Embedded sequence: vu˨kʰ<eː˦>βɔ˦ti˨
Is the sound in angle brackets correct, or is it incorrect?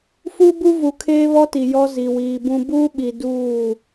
correct